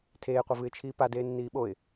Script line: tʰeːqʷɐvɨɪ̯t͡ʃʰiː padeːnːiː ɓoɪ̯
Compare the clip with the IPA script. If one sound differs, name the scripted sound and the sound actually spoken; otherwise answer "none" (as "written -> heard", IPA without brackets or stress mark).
none